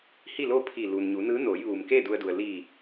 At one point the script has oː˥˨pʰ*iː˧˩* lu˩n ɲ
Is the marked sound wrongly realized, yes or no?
no